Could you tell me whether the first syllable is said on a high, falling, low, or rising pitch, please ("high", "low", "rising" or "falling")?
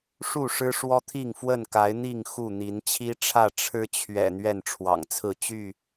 falling